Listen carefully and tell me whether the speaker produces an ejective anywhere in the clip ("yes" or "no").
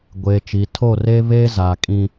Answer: yes